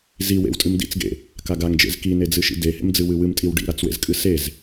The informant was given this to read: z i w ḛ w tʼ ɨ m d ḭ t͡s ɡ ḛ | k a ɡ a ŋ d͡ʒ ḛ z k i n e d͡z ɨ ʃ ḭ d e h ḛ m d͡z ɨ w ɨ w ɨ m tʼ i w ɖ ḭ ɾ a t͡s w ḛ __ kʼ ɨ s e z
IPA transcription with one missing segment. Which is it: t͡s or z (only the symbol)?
z